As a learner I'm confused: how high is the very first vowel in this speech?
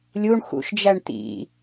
high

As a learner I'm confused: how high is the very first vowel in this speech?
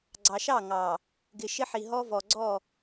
low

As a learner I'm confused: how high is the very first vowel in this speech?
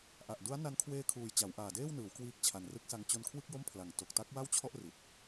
low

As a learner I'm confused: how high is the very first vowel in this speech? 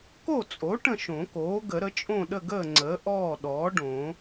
mid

